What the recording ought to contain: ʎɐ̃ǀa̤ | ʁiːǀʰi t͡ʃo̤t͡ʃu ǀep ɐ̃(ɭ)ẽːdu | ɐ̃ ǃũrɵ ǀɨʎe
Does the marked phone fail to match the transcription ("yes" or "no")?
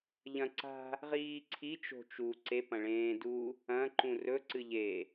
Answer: no